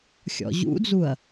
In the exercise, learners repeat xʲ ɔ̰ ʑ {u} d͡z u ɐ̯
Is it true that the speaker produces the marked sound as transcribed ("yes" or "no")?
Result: no